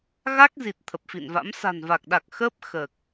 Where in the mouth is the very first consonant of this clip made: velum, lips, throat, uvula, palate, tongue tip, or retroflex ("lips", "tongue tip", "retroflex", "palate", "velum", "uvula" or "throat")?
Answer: velum